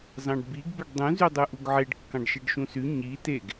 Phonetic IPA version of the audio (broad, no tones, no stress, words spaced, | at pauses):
zɑ̃ɖbiɡ beɖdˤũ zydˤɯʔuɡʕeɖ kːɑ̃ɖʃeɖʃũsy ɲi teɡ